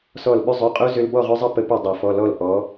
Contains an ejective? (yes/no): yes